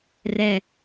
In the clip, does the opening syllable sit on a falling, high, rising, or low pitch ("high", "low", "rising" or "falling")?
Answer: low